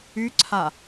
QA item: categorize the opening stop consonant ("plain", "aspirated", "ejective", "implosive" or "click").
click